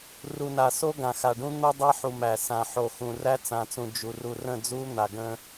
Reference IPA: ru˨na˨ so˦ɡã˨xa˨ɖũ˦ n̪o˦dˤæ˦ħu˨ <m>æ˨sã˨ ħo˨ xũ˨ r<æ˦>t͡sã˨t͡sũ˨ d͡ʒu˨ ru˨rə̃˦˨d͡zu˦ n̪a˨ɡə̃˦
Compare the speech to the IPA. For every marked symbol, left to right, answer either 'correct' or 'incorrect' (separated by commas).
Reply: correct, correct